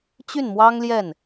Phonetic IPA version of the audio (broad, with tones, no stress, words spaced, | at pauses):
t͡ɕy˥˩nmwɑ˥ŋljɛ˥˩n